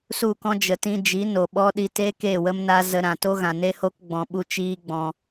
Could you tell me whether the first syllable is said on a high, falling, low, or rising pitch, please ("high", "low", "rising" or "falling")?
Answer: falling